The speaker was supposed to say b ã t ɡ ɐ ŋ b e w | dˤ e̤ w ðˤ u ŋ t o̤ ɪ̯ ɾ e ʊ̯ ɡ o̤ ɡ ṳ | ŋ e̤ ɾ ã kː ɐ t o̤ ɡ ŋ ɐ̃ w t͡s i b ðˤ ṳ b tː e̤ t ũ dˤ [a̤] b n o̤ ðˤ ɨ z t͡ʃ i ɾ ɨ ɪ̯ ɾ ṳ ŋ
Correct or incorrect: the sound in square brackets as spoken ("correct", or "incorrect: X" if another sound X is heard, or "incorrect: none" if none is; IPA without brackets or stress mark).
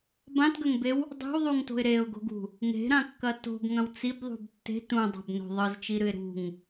correct